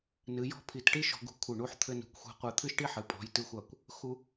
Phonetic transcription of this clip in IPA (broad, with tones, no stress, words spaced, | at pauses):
nɨ˩˧jɔ̤˥˧pʰi˧˩t ʈi˥ʃɔ̤˧ɡṳ˧kʷʰɘ˧˩ ɳu˧ħt̪ʰɘ˧nṳ˩˧kʷxʷɛ̤˧ qʷɛ˧t̪ʰɨ˥ʃʈi˥ħɨ˩˧ pʼɔ̤˩˧jtɨ˧xʷa˧˩kʷ | xu˧